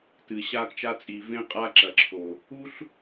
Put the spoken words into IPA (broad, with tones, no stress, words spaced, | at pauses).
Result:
tɨ˨ ɕa˦kt͡ʃa˦t͡sʼi˨ vẽ˦qʼa˦ǁɐ˨ ǁʰo˨ | u˦ɬ